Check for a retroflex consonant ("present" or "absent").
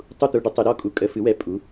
present